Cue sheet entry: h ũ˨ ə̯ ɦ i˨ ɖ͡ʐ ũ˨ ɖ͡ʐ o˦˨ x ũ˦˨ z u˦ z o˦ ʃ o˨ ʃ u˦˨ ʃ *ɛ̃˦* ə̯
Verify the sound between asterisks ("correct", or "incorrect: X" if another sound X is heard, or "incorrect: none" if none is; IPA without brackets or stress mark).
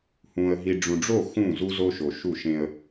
incorrect: ẽ˦